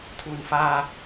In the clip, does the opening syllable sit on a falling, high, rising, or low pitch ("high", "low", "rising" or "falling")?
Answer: low